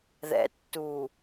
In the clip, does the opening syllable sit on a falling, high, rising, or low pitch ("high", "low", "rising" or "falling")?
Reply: low